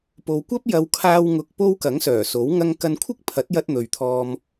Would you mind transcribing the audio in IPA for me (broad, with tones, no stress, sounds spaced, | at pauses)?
p o˨ w kʷ ɐ˥ p̚ j ɐ˧ w kʰ aː˧ w ŋ ʊ˨ k̚ p o˧ w k ɐ˨˥ ŋ s œː˨˩ s o˨˥ w ŋ ɐ˧ ŋ k ɐ˧ n kʷʰ ɪ˥ k̚ pʰ ɐ˨˥ t̚ j ɐ˧ t̚ n̪ ɵ˨ ɥ t̪ʰ ɔː˧ m